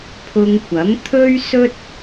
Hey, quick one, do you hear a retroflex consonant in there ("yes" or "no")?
no